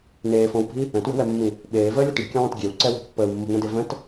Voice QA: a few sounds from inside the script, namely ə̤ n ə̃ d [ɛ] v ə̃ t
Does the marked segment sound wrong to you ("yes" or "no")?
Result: yes